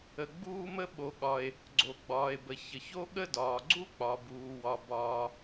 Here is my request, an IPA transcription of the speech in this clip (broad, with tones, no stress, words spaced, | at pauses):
ə˩ ɡ͡buː˥mə˥ ɓo˩ɠɒ˩e̯ | ɡ͡ǀo˩ɡ͡bɒː˩e̯bə˩ çə˩ço˥ ɠə˥dɒː˩ ɡ͡ǀu˥k͡pɒ˩buː˩wɒ˩ bɒː˩